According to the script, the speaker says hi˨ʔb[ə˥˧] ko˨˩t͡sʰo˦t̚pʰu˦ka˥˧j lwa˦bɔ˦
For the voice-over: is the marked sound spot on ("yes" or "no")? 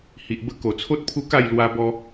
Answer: yes